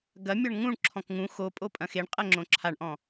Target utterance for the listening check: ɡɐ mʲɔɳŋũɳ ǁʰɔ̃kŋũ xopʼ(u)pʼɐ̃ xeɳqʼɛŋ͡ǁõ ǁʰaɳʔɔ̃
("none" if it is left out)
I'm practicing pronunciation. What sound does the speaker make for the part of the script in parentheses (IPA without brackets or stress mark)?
o